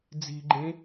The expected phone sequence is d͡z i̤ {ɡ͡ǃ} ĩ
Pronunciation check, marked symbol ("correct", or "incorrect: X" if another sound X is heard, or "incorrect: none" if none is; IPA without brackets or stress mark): correct